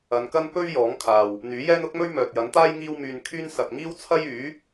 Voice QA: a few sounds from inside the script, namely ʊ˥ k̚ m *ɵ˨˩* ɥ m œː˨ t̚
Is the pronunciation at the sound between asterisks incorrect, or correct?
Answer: incorrect